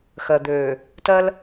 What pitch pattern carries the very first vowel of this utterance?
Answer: low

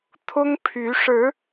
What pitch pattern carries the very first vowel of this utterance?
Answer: high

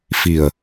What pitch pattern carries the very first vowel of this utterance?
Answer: low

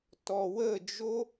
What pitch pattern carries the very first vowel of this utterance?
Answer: low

